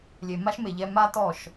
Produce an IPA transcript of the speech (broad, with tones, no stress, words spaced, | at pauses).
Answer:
lʲe˨ma˦ʃme˨ ʎɛ˦ ma˦tɔ˦˨ʃ